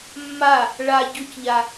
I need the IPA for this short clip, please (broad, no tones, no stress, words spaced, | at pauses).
mːa | ɭa ɟʊcʎa